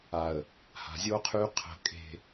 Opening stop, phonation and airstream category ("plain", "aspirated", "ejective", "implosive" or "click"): aspirated